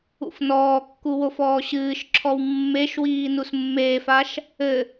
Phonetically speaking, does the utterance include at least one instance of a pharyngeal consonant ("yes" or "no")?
no